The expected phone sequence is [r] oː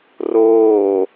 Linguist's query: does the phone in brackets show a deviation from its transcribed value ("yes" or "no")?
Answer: no